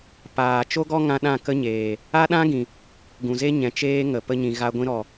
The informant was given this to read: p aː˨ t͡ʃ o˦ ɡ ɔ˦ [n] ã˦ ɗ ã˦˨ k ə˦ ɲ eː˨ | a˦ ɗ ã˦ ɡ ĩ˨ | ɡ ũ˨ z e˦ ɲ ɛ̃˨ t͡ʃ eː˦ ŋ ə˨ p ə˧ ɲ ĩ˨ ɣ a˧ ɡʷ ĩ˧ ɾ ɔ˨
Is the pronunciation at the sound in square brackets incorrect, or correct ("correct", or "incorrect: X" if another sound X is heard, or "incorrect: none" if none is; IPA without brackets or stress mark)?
incorrect: ŋ